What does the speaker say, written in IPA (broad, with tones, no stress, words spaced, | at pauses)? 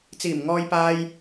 t͡siː˨˩mŋɔː˧jpaː˧j